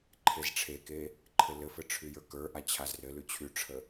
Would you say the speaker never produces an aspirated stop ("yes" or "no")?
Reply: no